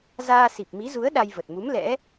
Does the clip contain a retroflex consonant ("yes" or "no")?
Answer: no